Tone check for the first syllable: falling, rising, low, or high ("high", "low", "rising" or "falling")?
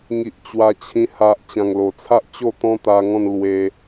low